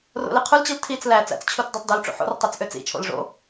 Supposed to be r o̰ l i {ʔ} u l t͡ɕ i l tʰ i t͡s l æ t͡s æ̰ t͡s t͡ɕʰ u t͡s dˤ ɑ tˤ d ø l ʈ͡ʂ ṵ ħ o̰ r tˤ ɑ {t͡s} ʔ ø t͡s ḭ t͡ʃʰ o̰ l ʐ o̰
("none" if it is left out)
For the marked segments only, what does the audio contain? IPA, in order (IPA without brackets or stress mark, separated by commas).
qʰ, t͡s